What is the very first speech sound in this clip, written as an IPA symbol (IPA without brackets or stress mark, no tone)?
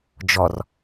d͡ʒ